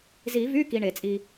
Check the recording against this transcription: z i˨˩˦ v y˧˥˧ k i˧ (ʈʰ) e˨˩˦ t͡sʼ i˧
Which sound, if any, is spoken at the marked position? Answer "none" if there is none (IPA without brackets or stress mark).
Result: ɳ